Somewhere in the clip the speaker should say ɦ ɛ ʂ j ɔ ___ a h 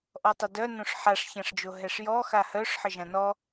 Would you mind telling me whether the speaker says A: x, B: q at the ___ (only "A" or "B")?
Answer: A